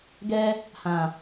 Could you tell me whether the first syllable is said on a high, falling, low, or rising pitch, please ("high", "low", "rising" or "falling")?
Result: high